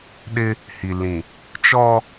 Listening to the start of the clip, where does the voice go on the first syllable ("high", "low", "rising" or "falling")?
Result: high